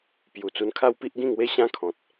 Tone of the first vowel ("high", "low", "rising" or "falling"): low